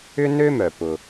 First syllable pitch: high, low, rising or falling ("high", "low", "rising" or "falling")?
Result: high